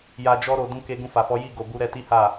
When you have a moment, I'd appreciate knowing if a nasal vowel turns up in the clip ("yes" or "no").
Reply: yes